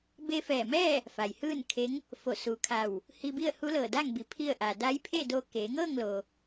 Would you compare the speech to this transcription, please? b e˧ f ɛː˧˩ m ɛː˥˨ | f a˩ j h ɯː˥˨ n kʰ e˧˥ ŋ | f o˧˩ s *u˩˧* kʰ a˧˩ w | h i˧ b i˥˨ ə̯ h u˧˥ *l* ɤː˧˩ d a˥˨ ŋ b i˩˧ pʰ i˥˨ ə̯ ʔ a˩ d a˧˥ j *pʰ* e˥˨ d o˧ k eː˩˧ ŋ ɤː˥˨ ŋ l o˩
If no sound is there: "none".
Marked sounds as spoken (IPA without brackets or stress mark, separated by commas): u˩˧, l, pʰ